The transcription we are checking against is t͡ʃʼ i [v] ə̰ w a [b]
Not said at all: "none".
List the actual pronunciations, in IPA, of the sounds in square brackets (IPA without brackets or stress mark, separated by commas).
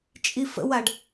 f, ɖ